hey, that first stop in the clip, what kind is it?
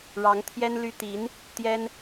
aspirated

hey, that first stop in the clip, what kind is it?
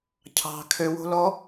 aspirated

